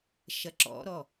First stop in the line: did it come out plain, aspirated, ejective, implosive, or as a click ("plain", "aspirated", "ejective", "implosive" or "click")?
click